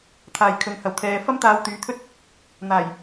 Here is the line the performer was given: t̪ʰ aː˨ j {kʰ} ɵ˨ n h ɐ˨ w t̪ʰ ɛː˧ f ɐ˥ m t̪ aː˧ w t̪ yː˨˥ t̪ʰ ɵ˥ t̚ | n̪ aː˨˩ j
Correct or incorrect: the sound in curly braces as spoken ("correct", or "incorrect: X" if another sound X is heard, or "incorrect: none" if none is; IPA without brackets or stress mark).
correct